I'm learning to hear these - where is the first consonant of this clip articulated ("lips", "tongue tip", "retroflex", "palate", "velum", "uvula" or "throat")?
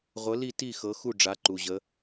uvula